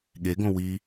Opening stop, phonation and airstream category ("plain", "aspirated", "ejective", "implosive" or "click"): implosive